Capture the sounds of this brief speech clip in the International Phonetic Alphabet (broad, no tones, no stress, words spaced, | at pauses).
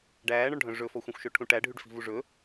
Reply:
ɖæːɳɔɳɖʱœ̃ ʐɵfɔxʷœ̃xʷʃɵ ʈʰũʈæ ɖʱyɖfi̤vuʐɵ